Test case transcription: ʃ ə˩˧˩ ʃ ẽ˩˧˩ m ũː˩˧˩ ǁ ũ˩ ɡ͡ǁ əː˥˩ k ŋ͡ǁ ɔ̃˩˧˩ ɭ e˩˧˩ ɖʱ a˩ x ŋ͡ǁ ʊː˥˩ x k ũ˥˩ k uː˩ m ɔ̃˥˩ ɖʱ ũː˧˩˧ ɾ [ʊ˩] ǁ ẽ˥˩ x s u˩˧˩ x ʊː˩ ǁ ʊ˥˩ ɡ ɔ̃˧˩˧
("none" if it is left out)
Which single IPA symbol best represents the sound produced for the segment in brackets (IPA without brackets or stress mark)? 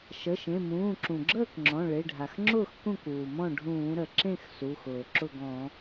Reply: ə˩